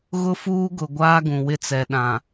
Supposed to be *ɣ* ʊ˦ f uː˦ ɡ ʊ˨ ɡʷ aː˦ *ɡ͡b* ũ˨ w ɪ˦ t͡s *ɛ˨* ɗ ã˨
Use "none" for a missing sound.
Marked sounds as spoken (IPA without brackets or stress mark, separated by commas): ɣ, ɡ, ɛ˨